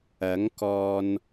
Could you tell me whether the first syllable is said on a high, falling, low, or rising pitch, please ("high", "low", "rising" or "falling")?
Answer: rising